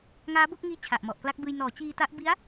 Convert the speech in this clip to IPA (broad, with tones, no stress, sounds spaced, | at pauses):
ŋ aː˦˥ b o˥˩ k̚ ŋ iː˦˥ t͡ɕʰ a˨˩ ʔ m ɔ˨˩ ʔ k l a˦˥ k̚ b ɯː˧ j n ɔː˩˦ t͡ɕ iː˧ t a˦˥ ʔ b i˦˥ a̯